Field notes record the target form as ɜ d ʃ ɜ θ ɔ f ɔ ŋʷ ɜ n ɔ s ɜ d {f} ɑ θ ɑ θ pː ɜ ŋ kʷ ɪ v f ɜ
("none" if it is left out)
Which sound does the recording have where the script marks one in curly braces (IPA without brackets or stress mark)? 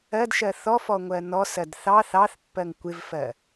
θ